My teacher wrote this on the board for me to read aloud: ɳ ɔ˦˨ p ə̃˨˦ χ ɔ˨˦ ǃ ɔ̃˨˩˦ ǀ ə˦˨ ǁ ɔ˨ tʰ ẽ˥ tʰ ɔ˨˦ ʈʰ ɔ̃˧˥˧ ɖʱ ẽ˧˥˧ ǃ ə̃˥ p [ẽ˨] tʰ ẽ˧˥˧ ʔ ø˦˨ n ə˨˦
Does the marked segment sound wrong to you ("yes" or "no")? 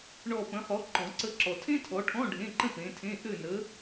yes